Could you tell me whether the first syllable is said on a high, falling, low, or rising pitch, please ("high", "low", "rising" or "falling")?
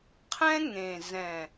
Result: high